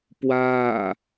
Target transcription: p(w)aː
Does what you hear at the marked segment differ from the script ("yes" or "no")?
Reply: no